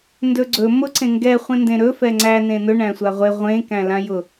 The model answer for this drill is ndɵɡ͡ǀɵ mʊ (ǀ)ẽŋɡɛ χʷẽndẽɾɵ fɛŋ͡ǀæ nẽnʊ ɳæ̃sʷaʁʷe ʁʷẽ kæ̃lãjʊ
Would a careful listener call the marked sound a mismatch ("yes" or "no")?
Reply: no